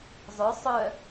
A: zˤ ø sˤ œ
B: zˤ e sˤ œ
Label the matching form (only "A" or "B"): A